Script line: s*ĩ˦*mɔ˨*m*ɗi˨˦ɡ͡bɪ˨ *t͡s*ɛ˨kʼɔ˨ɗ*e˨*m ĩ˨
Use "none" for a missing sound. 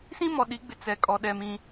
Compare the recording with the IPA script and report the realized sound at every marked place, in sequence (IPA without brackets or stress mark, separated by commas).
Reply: ĩ˦, none, t͡s, ɛ˨